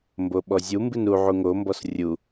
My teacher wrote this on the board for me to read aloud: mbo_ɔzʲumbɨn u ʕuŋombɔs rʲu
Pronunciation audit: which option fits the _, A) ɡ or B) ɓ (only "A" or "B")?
B